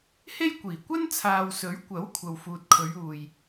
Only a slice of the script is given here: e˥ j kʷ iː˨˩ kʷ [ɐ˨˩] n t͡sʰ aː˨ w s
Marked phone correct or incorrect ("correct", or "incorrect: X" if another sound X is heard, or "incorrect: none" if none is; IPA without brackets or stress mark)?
incorrect: ɐ˥